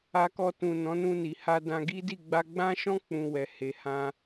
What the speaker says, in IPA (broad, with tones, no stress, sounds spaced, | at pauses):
a˧ k ɔ˧ t ũ˨ n ɔ̃˨˦ n ũ˧ n i˨ h a˧ d ã˧ ɡ i˦ d i˦˨ ɡ͡b a˧ ɡ͡b ã˦ ʃ ɔ̃˦ k͡p ũ˧ w ɛ˨ h e˨ h ã˧